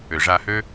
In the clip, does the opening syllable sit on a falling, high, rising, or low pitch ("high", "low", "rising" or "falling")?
low